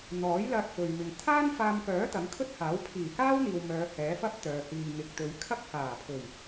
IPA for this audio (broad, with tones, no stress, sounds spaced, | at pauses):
n̪ ɔː˨˥ j l ɐ˧ t̚ f ɵ˨ ɥ m ɪ˨ ŋ t̪ʰ aː˥ n f aː˧ m k œː˨˥ t̪ ɐ˨˥ ŋ kʰ ɵ˥ t̚ h aː˨˥ w pʰ iː˨˩ k aː˥ w n̪ iː˨ w m œː˨˧ h ɛː˨˥ f ɐ˥ p̚ t̪ œː˨ h iː˨ ŋ ɪ˨ k̚ t̪ ɵ˨˧ ɥ kʰ ɐ˥ k̚ h aː˨˩ pʰ ɵ˨˩ ɥ